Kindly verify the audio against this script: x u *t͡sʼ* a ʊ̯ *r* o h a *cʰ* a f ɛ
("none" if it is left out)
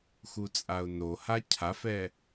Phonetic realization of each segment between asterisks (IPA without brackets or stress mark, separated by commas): t͡sʼ, n, cʰ